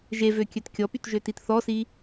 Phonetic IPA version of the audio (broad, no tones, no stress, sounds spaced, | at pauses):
ʒ e v ø kʲ œ t kʲ ɔ p y t ʒ ø t i t θ ɔ s i